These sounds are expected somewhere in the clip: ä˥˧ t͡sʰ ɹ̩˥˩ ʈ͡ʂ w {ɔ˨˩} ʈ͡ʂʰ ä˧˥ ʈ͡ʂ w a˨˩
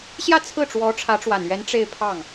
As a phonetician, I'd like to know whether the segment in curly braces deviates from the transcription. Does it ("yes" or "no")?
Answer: yes